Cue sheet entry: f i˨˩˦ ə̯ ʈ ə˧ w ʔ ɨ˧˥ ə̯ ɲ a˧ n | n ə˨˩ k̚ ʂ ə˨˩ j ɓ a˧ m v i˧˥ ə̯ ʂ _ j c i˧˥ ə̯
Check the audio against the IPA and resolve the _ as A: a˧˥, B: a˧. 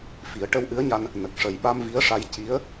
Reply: B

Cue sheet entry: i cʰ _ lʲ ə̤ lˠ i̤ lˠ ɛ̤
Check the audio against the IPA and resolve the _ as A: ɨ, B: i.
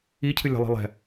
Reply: A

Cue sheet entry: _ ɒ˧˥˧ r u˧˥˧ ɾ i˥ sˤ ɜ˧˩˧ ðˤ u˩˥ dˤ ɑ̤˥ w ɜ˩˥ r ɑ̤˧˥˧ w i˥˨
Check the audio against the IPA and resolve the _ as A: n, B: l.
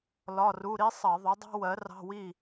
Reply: B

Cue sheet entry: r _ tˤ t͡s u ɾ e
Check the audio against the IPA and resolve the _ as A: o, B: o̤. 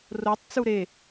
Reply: A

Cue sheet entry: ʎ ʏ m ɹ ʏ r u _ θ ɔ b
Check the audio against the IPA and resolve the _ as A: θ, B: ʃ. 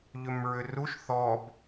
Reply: B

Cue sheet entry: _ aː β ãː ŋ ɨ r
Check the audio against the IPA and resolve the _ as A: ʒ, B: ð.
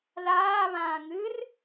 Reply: B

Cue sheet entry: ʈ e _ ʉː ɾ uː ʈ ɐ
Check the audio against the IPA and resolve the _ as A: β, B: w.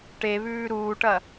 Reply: A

